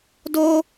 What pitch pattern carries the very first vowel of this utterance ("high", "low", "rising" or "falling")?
high